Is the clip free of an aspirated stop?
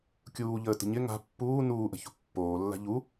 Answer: yes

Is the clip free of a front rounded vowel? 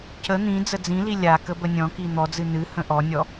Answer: yes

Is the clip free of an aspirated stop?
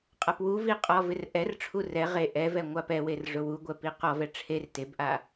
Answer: no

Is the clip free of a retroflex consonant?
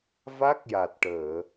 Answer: no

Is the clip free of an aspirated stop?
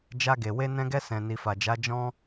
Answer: yes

